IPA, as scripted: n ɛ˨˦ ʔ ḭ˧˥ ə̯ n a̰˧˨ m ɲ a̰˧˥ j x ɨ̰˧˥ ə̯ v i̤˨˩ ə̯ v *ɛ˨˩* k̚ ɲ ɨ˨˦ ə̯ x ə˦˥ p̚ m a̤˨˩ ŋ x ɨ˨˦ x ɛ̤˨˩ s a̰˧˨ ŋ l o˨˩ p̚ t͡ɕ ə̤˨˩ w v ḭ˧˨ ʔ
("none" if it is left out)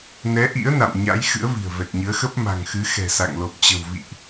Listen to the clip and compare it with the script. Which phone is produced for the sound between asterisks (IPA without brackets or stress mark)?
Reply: ɛ˨˩